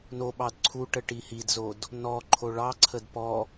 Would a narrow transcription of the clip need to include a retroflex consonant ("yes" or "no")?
yes